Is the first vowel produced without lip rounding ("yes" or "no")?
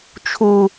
no